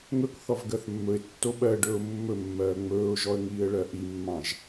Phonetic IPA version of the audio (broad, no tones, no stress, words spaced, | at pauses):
ŋɵkθɔv ɡɜθmːɵɪ̯tːo ɓɜɖɵːʊ̯ mːɵmːɜː ŋ͡mɵːʊ̯ʒɔə̯ ŋiːə̯ɭɜʔimːɑ̃ʒ